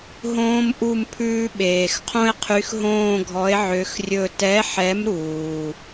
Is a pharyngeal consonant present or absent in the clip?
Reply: present